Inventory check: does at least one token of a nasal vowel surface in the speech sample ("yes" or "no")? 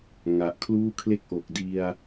no